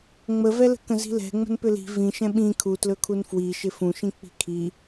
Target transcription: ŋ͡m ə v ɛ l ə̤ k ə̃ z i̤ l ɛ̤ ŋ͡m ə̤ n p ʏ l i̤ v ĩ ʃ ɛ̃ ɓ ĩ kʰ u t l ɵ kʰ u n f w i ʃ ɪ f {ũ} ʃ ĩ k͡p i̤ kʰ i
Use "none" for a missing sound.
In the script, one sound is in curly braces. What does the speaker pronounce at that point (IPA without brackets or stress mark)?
ũ